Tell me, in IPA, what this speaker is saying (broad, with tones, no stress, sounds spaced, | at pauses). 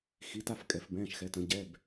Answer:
x i˩˧˩ t a˦˨ f kʼ ɛ˩˧ f b ɛ̃ː˩˧˩ ʃ x ɛ˩˧ t ə̃˩˧ ɟ ɛ˩˧˩ b